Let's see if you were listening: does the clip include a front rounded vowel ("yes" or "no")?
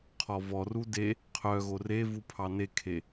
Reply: yes